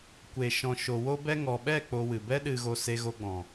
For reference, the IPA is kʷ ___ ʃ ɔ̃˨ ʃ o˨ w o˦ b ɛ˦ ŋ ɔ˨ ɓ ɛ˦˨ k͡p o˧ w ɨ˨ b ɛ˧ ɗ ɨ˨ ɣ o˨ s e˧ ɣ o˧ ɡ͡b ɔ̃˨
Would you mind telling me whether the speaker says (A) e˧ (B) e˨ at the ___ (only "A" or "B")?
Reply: B